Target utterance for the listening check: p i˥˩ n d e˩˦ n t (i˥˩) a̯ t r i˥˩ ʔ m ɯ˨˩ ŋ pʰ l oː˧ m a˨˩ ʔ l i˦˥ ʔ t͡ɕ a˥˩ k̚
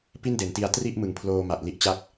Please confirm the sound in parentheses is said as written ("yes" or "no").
no